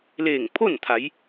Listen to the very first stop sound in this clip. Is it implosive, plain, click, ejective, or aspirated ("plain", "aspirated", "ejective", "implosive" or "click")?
aspirated